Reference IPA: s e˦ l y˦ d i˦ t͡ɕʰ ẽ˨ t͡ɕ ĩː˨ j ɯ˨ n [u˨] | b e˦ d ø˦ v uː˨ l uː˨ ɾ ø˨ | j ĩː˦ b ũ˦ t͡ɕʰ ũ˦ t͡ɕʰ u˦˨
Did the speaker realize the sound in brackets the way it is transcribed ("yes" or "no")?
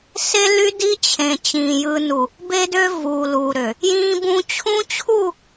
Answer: yes